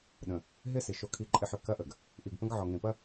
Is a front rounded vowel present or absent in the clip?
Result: present